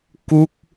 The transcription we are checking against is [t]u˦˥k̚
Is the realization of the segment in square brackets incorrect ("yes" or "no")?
yes